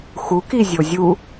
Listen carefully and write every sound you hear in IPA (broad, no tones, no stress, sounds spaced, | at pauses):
x u k i zʲ o zʲ u